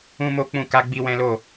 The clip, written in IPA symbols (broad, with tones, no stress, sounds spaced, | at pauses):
ũ˦ m o˦ k͡p ũ˦˨ k a˧ ɡ͡b i˧ w ɛ̃˦ l o˦˨